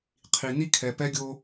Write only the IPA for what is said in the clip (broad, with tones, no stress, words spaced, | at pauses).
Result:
qʰi˨ ni˦kʰɛ˨ pɛ˦ɡʲo˦